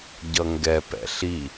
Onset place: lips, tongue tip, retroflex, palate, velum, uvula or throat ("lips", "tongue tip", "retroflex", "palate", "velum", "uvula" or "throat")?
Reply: palate